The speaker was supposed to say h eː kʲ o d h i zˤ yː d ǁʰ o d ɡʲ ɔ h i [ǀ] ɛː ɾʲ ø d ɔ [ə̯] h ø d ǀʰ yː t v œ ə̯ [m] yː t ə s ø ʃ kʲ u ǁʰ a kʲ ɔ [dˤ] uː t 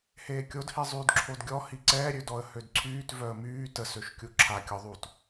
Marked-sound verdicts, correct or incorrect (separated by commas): correct, correct, correct, incorrect